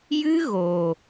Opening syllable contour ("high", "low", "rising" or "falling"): high